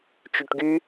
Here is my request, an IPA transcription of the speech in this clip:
t͡ʃyʈɡy

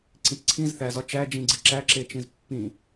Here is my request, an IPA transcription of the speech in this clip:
ǀĩtǀʰĩz θæz ɒt͡ʃæ d͡ʒĩɡ͡ǀiǁæ ǁet͡ʃĩzpːĩ

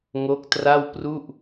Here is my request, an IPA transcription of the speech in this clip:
ŋo˦˥k̚tra˥˩w pru˥˩ʔ

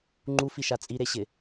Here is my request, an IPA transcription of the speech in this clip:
ŋ͡ǃufiʃa t͡sʼiɾeɕɪ

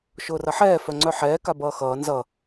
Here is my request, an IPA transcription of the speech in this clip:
ʃʊːrʌħɛː fœŋ͡ǀœħɛː kabʌːxʌː nzʌ

